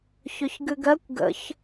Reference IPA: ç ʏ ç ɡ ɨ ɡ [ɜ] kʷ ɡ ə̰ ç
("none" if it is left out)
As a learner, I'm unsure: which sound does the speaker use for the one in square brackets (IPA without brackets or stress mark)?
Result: ɜ